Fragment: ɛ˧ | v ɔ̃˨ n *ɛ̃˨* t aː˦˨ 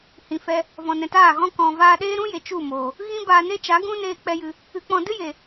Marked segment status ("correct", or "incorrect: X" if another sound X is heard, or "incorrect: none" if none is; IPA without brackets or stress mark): correct